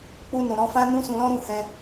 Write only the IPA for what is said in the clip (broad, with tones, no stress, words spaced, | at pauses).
k͡pu˧nũ˨ɾɔ̃˧fã˦ nũ˦sũ˧lɔ̃˦ɾũ˦˨ hɛ̃˧